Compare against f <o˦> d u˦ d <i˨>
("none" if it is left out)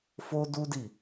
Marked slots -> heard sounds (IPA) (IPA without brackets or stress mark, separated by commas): o˦, i˦˨